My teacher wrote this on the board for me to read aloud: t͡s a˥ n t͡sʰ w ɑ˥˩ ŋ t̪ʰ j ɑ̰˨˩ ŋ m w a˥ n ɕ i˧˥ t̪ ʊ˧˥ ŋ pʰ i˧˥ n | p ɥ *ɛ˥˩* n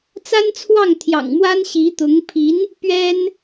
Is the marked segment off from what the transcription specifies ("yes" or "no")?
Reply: yes